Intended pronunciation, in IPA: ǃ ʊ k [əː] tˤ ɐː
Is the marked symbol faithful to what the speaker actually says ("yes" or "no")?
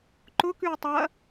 no